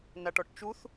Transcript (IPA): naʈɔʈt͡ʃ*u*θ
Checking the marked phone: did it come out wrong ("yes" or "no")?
no